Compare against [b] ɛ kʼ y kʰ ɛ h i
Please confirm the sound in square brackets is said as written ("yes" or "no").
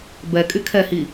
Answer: yes